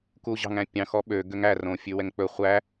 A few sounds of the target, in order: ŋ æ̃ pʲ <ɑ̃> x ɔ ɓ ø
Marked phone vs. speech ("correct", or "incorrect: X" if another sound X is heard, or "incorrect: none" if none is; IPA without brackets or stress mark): correct